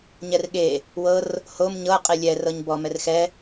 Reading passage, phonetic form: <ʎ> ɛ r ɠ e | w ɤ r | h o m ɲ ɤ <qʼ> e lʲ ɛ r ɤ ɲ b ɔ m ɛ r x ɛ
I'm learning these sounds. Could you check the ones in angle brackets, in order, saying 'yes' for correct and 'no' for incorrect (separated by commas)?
no, yes